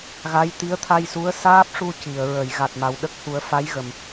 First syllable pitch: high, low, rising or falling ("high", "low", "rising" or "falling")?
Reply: rising